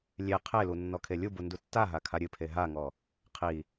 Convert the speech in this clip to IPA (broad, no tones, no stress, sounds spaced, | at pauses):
lʲ e qʰ e l u nː ɔ kʰ e lʲ u b u n d u tː a ɦ a kʰ a ɾʲ ɨ pʰ e ɦ a ŋ ɔ | qʰ i